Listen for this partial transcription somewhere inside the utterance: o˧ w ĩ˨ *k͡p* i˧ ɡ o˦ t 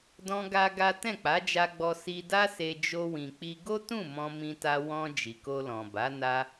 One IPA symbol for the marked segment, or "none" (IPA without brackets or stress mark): k͡p